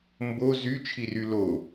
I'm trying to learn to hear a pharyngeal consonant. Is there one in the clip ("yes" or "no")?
no